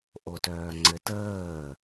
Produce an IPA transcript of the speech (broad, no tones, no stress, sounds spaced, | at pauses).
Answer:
ʔ o t œː ŋ͡ǀ ɘ t əː